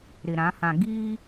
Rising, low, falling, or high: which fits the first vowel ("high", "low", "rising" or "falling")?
low